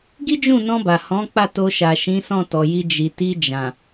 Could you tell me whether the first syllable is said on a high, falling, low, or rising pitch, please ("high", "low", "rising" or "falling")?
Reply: high